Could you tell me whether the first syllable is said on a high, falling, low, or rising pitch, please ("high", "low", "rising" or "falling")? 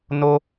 high